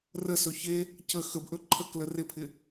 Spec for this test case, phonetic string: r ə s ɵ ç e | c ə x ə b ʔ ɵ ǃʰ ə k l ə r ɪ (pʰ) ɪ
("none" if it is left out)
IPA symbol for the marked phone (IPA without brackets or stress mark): pʰ